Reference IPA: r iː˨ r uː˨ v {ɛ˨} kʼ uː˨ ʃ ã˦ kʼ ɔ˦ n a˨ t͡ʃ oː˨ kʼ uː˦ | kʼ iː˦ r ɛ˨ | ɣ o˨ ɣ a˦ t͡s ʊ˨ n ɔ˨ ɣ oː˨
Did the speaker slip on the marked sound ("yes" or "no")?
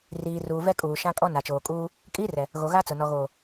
yes